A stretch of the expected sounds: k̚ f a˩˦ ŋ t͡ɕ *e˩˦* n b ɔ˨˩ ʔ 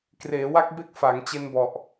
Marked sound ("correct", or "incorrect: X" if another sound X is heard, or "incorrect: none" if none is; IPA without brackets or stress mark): incorrect: e˧